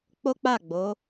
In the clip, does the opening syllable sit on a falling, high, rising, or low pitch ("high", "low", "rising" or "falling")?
high